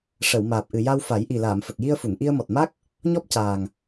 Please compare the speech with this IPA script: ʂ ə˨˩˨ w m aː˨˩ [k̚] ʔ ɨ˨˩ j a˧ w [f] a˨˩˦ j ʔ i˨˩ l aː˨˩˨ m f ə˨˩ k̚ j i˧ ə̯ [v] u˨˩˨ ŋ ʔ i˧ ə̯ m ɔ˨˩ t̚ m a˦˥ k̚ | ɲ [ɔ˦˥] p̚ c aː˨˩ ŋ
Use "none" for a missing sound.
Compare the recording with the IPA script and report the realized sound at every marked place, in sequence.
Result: p̚, f, f, ɔ˦˥

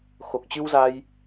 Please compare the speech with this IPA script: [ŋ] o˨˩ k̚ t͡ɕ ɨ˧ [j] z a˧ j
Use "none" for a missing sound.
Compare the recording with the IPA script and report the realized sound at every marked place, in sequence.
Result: x, w

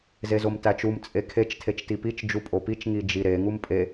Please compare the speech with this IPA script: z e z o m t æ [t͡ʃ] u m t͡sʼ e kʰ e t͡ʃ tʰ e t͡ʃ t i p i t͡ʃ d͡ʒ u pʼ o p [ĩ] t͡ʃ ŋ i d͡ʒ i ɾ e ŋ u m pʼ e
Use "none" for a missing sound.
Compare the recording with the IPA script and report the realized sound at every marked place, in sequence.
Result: t͡ʃ, i

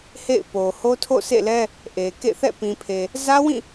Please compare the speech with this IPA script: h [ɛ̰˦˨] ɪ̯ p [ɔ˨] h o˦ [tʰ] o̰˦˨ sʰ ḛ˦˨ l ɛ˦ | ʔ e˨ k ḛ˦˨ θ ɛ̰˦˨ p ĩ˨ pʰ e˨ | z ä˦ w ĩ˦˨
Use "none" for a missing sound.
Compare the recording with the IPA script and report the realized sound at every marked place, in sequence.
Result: ḛ˦˨, o˨, tʰ

